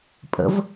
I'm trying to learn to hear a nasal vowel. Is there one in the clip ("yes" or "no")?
no